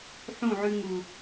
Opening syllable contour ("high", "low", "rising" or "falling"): falling